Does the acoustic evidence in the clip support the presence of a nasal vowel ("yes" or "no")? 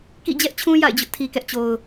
yes